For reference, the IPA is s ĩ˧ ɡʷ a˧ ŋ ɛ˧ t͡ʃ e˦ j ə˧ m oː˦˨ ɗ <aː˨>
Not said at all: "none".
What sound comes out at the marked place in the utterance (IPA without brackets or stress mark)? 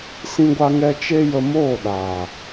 aː˨